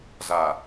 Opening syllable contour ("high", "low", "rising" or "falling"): low